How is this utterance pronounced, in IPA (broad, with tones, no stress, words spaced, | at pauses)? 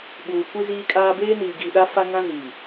ɓuː˨kʷi˦ziː˦kʼaː˦ beː˦niː˨ɡiː˨ɗa˦ fa˦ŋã˦ ziː˨